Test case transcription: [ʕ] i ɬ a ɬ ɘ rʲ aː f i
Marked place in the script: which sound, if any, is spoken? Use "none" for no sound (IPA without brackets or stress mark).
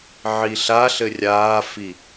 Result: ʕ